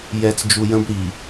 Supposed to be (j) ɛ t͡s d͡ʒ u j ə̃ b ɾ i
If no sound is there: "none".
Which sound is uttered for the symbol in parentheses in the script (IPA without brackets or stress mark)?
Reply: j